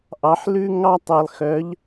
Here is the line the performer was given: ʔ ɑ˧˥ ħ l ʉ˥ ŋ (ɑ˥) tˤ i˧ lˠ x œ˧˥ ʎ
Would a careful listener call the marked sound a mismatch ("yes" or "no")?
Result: no